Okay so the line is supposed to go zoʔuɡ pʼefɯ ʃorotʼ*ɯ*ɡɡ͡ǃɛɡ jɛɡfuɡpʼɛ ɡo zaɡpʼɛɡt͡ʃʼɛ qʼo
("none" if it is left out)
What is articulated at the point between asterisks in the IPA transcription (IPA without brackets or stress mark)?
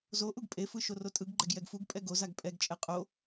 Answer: ɯ